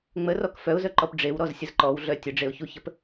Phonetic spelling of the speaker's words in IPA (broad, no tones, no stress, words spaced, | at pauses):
ŋ͡mərɔk fœʊ̯zœǃɔp ɖ͡ʐewɾɔzsʲəz ǃɔwɮœ tʲəɖ͡ʐeʊ̯çuçəp